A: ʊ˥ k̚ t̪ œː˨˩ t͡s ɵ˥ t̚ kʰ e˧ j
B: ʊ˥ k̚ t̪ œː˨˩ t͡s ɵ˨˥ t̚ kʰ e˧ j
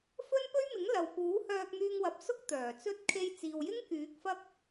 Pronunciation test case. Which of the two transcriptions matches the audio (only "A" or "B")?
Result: A